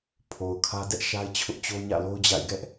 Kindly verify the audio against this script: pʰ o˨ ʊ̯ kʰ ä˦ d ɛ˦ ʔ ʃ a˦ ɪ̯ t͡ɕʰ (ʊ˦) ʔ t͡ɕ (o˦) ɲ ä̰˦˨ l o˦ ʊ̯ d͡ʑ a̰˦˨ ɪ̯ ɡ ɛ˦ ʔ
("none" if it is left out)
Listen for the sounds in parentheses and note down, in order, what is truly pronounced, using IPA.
ʊ˦, o˦

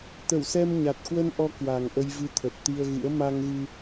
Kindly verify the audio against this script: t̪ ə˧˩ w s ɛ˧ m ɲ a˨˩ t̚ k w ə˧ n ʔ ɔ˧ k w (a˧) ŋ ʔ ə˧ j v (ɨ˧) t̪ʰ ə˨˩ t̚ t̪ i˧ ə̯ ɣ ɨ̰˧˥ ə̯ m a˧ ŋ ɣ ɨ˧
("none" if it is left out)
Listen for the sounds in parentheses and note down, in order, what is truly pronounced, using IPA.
a˨˩, ɨ˧

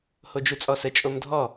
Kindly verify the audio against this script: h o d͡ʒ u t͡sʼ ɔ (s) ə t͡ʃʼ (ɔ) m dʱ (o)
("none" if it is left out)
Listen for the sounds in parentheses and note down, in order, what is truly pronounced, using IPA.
s, o, ɔ

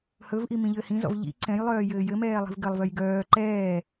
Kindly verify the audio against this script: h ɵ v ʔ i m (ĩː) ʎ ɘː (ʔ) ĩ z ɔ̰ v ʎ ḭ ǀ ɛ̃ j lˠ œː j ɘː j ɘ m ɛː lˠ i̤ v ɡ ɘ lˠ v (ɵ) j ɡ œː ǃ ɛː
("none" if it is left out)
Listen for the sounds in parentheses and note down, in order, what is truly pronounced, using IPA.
ĩ, h, œ

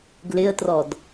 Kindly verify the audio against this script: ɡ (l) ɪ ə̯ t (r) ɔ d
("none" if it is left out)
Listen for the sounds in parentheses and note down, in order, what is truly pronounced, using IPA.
l, r

